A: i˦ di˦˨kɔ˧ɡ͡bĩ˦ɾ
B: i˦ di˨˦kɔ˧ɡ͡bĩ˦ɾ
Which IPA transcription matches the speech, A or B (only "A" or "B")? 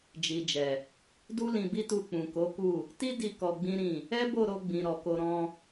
A